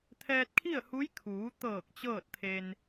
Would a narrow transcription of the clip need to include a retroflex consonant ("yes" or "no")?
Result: no